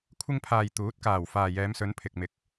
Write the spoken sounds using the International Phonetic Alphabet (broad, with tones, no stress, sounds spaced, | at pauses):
kʷʰ ɪ˧ ŋ pʰ aː˨ j t̪ uː˨˥ t̚ k aː˨˩ w f aː˨ j ɛː˨˧ m s ɵ˨˧ n pʰ ɪ˨ k̚ m ɪ˧ k̚